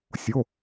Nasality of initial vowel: oral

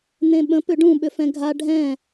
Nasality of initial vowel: nasal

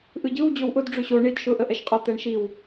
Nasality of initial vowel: oral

